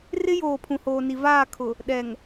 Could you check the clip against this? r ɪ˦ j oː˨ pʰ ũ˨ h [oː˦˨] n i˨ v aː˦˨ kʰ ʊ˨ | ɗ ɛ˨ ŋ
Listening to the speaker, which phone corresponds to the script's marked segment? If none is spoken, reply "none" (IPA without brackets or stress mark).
oː˨